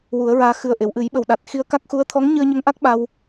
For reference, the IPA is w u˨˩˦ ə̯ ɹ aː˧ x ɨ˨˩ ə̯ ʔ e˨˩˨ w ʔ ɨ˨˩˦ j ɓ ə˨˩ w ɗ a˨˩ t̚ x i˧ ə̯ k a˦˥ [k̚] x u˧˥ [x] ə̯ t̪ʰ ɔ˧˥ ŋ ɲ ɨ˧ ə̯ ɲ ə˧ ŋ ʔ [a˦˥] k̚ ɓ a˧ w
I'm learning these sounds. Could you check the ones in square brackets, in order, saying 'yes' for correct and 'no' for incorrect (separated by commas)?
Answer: yes, no, yes